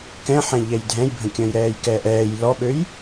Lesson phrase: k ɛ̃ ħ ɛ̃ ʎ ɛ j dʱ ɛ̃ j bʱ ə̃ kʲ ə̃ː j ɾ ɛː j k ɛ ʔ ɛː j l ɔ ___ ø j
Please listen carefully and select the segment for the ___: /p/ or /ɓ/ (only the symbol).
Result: ɓ